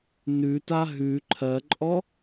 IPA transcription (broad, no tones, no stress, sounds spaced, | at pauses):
n ʉ t a ɦ ʉ ǃʰ ɜ ǃʼ ɔ